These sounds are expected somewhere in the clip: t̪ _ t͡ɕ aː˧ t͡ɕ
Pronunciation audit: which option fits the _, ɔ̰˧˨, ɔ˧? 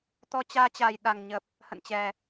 ɔ˧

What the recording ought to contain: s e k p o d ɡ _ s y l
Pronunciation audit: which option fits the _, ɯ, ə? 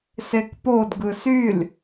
ɯ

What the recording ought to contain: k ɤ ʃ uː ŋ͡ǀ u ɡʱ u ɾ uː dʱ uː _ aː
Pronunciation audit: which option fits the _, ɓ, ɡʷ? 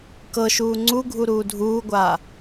ɡʷ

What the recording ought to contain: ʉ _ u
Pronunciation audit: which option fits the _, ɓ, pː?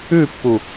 pː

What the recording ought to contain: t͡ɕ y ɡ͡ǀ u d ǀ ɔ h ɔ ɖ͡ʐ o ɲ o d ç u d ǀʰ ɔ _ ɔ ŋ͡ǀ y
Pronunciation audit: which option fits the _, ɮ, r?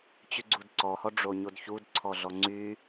ɮ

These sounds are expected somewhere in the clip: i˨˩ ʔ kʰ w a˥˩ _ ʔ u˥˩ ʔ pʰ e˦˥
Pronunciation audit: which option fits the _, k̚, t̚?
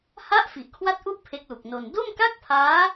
t̚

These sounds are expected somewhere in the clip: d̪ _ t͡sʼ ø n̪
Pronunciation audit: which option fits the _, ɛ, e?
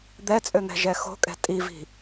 ɛ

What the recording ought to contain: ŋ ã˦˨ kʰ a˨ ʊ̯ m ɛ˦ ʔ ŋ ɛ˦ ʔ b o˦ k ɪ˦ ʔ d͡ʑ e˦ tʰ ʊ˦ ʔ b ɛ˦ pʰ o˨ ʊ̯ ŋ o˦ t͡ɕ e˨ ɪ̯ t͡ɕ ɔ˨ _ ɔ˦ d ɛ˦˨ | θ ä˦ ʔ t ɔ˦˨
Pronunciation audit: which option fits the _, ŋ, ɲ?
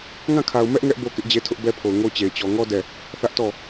ŋ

